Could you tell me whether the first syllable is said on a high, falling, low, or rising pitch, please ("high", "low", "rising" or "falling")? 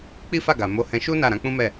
high